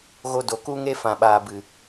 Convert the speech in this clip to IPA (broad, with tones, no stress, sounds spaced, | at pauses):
ɣ o˧ d o˨ k u˦ ŋ e˦ f ã˨ ɓ aː˨ b ɨ˨